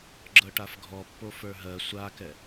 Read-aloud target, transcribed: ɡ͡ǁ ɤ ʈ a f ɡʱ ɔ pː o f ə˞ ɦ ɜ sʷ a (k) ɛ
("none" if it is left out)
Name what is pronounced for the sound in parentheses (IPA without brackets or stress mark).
k